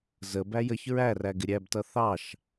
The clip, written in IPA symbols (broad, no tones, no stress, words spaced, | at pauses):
zə bæjəç ɹæræɡɪ ɾʲæbtʌ θɑʃ